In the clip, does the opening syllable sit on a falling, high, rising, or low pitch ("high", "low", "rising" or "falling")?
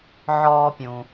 high